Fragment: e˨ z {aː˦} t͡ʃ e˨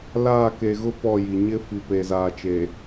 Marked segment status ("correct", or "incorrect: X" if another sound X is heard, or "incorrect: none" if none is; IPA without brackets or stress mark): incorrect: aː˨